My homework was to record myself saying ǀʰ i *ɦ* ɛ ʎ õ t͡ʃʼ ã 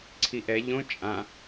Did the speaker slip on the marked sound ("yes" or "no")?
yes